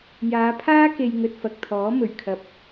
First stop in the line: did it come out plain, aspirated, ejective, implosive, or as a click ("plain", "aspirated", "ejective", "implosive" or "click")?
aspirated